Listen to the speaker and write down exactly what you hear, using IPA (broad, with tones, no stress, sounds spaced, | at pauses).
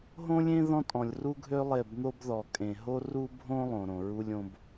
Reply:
ɦ õ˦ lʲ ẽ˦ ð ɔ̃˦ tʼ ɔ̃˨ lʲ r u˦ ɡʱ ø˦ lˠ e˦˨ b n̪ o˦ b ð ɔ˨ kʼ ẽ˨ ɦ o˦ r u˦ bʱ õ˦ lˠ õ˨ ɾ õ˨ ɹ u˦ lʲ õ˦ b